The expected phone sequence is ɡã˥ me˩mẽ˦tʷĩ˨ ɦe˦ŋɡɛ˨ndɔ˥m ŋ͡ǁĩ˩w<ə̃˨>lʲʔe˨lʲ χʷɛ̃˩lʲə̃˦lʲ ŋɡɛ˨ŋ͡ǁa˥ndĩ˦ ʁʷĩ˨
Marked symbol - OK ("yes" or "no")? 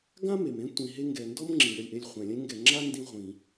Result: no